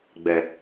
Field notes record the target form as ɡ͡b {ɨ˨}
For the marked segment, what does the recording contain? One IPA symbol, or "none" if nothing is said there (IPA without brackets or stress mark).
ɛ˨